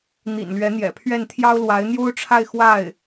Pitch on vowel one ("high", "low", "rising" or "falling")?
low